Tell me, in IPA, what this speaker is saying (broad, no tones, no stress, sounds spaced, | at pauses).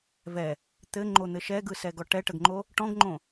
v ɛ | t̪ ɘ ŋ͡ǃ o n̪ ɘ ʃ ɛ ɡ ɯ s ɛ ɡ ɔ ʈ ɛ ʈ ə ɡ ŋ͡ǃ o | ʈ ɔ̃ ɡ ŋ͡ǃ õ